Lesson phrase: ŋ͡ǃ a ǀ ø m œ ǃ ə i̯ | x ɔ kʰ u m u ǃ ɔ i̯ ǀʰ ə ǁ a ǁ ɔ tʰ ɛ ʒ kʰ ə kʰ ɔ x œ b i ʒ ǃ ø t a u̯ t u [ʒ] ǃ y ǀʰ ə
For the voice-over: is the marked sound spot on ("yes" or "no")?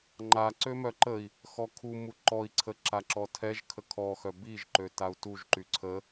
yes